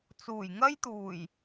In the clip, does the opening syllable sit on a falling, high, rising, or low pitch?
low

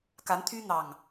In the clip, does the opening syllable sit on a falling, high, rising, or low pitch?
rising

